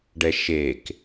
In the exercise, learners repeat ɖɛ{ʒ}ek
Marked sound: incorrect: ʃ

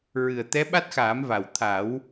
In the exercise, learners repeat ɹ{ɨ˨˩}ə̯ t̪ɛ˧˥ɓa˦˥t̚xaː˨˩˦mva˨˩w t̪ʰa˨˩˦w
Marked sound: correct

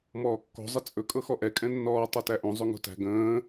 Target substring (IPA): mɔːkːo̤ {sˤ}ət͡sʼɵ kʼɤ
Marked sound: incorrect: zˤ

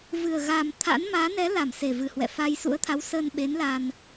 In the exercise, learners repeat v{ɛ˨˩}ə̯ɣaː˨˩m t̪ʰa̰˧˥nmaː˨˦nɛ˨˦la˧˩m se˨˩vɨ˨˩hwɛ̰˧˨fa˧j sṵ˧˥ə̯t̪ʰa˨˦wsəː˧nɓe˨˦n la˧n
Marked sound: incorrect: ɨ˨˩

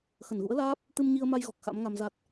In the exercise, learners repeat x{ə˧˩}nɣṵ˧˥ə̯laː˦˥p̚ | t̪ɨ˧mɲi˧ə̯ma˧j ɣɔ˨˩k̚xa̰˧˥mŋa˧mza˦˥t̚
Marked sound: correct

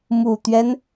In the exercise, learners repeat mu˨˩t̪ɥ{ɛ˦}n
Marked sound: correct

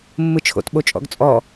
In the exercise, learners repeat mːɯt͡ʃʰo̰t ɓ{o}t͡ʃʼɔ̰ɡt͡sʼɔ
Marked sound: correct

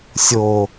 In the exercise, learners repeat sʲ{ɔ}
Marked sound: incorrect: o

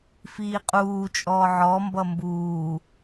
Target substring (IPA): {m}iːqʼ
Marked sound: incorrect: f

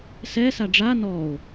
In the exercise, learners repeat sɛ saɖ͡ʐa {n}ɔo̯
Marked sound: correct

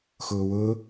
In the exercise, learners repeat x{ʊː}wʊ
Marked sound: correct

